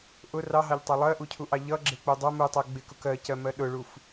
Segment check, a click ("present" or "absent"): present